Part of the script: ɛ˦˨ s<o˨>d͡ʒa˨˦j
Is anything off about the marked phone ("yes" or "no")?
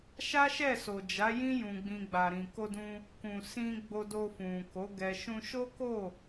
no